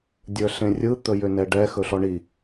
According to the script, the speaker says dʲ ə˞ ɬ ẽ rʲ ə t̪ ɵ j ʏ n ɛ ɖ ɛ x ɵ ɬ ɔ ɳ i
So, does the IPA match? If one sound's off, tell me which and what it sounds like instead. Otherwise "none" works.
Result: ə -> ɯ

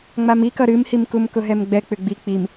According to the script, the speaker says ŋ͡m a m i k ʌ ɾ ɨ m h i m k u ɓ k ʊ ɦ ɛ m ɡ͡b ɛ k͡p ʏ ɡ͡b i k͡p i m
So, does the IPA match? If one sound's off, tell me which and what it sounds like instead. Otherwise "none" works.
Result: ɓ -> m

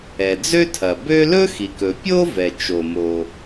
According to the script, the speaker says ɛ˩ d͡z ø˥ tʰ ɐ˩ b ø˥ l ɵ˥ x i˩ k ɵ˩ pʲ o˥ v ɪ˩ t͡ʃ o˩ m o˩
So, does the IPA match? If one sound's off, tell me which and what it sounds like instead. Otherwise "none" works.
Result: ɪ˩ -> ɛ˩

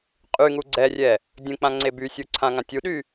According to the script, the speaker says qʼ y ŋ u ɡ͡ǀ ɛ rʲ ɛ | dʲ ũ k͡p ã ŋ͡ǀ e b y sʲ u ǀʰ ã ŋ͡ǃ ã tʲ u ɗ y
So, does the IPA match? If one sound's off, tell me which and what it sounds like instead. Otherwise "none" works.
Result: ŋ͡ǃ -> ŋ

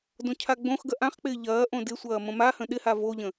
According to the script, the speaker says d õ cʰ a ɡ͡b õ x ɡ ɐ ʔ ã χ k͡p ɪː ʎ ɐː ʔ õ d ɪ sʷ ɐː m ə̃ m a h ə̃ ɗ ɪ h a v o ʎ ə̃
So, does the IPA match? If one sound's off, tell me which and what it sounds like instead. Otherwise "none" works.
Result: none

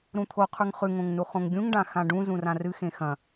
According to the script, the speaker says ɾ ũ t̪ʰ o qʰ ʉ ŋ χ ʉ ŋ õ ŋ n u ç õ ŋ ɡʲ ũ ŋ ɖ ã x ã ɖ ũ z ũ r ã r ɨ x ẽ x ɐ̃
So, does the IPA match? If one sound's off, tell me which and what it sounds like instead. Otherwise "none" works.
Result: ç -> χ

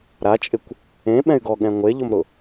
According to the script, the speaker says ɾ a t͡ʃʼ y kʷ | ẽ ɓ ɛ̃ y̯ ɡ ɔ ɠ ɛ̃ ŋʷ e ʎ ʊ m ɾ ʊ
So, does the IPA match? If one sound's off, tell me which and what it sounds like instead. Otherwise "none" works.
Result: y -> ɪ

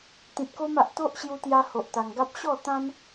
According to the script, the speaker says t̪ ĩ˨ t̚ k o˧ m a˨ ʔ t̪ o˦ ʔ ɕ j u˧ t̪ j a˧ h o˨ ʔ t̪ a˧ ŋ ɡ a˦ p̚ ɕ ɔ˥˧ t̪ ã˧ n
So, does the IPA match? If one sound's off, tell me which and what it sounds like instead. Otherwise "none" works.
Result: ã˧ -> ã˦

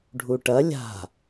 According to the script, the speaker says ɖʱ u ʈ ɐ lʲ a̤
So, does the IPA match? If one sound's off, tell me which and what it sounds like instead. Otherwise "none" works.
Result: none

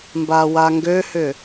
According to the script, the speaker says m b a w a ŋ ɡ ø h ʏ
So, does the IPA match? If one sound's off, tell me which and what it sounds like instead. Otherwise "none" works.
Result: none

